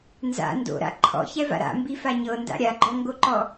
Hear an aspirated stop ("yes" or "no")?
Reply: yes